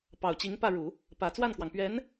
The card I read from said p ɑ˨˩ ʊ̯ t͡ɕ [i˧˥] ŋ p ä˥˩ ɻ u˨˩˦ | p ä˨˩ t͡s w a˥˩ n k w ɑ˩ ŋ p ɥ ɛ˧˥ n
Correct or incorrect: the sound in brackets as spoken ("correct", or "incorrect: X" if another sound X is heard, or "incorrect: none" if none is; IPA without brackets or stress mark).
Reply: correct